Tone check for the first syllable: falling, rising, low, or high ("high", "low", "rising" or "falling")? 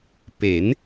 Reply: rising